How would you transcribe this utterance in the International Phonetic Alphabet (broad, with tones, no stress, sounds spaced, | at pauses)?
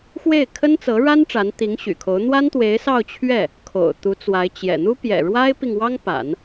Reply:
x w e˥˩ ɪ̯ kʰ ə˥ n t͡s ɤ˧˥ ɻ a˥ n ʈ͡ʂ a˧˥ n t̪ i˧˥ ŋ ɕ y̰˨˩ kʰ o˧˥ ʊ̯ n̪ w a˥ n t̪ w e˧˥ ɪ̯ s ɑ˥˧ ʊ̯ t͡ɕʰ ɥ ɛ˥˩ | kʰ o̰˨˩ ʊ̯ t̪ u˧˥ t͡s w a˧˥ ɪ̯ t͡ɕ j ɛ̰˨˩ n̪ u˥ p j ɛ̰˨˩ ɻ w a˥ ɪ̯ p i˨ ŋ w ɑ˥ ŋ p a̰˨˩˦ n